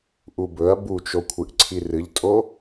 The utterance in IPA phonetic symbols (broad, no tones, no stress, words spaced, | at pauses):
ʔubɵɐ̯ but͡ʃokʷʰɨʔ ǀʰirɨʎtʼo